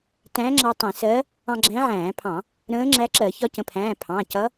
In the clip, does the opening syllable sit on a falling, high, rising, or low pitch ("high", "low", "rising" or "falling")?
rising